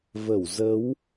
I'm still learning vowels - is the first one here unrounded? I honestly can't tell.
yes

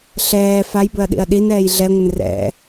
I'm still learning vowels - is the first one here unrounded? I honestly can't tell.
yes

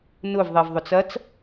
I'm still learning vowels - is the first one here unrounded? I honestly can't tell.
no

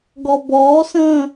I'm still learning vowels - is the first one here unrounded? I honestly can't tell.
no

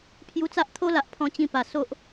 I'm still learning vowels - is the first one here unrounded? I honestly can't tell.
no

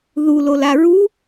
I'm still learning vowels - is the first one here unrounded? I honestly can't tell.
no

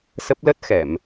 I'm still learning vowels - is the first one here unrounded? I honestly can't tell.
yes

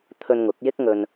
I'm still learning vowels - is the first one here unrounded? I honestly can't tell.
no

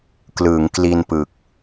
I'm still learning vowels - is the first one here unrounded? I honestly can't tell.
yes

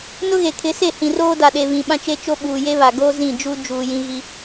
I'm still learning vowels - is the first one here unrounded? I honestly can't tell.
no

